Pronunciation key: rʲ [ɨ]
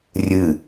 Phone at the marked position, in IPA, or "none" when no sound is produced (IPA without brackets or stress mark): ɨ